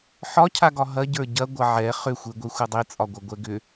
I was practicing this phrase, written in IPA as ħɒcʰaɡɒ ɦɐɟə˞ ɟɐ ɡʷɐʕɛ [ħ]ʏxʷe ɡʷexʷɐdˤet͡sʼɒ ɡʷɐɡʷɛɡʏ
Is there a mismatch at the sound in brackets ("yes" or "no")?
yes